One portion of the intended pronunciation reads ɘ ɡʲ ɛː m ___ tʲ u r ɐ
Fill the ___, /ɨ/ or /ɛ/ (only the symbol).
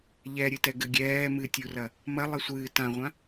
ɨ